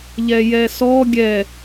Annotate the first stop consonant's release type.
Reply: plain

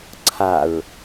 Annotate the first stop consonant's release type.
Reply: click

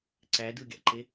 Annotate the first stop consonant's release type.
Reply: click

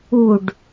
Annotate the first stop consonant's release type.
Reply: plain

